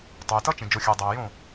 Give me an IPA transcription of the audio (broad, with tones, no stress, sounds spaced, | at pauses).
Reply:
tˤ o˨ j t ʌ˦ t͡ʃ ẽ˨ d͡ʒ o˨ xʲ æ˨ dˤ æ˨ e̯ j õ˦˨